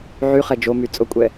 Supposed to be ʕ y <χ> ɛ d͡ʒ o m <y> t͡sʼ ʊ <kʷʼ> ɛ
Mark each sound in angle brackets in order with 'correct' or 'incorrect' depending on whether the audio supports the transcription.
correct, correct, correct

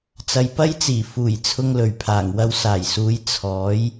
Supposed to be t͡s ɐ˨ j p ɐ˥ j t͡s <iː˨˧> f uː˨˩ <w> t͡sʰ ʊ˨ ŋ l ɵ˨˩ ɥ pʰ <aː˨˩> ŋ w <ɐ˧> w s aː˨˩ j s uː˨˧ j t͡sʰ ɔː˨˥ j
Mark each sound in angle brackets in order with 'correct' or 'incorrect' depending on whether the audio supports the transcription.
incorrect: iː˨˩, incorrect: j, correct, correct

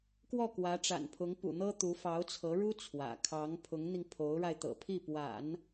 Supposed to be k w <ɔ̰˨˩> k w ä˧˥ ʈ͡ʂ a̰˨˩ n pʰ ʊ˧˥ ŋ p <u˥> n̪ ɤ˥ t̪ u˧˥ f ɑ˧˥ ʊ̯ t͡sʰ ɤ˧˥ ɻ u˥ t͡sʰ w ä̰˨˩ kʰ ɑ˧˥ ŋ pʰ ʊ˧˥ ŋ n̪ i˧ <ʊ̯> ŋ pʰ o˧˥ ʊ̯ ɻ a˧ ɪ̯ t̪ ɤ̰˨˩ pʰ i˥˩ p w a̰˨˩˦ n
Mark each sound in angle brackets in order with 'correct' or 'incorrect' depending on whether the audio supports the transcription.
incorrect: ɔ˥˩, incorrect: ṵ˨˩, incorrect: none

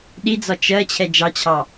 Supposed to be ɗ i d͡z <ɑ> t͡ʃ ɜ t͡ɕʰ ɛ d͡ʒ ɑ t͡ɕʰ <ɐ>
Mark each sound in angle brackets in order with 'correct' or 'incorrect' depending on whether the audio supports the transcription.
incorrect: ɒ, incorrect: ɑ

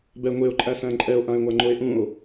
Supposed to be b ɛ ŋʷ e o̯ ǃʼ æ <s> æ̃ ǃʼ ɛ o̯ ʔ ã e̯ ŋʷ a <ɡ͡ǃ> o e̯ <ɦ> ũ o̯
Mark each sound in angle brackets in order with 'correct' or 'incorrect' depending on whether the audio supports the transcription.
correct, incorrect: ŋ͡ǃ, incorrect: ʔ

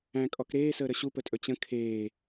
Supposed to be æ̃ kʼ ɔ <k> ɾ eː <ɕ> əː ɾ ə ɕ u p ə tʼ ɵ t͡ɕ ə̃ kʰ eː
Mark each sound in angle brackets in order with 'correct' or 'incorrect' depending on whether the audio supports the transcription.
correct, incorrect: s

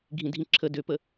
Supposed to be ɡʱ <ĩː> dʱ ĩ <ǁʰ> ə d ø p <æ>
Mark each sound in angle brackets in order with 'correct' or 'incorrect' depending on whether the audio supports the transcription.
incorrect: ĩ, correct, incorrect: ə

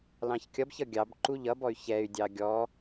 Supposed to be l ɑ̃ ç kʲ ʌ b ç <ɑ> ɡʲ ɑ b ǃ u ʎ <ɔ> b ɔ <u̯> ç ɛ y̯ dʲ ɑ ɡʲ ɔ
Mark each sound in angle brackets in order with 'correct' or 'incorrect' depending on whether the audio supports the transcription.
incorrect: ʌ, incorrect: ʌ, incorrect: y̯

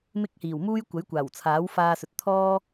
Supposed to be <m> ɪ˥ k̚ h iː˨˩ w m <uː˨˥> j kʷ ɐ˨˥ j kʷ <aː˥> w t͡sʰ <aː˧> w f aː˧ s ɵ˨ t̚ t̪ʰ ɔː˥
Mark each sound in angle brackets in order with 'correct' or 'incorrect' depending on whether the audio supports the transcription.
correct, incorrect: uː˥, incorrect: aː˨˩, incorrect: aː˨˥

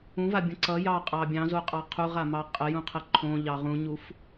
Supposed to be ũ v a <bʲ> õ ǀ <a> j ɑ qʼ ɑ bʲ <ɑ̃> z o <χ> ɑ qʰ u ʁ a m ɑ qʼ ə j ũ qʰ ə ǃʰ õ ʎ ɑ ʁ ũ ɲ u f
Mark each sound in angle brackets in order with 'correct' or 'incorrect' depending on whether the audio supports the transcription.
correct, incorrect: ʌ, correct, incorrect: qʼ

